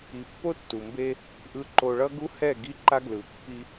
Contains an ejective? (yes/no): no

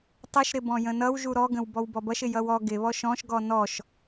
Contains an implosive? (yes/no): no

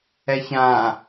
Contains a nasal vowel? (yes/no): yes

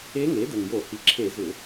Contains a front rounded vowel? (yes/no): yes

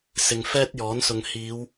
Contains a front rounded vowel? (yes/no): no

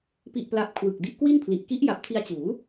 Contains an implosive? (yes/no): no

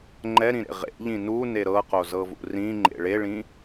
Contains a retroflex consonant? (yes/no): yes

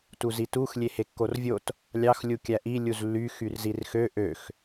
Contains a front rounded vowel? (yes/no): yes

